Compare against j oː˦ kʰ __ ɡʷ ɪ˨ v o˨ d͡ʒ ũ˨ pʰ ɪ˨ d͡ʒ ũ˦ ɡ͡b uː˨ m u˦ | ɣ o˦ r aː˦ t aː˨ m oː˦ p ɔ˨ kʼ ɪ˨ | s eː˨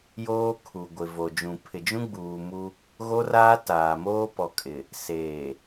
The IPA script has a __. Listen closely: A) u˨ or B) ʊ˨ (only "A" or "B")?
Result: A